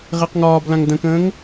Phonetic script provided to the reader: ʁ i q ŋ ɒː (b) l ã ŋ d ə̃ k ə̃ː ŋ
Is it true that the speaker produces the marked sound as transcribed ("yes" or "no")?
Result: yes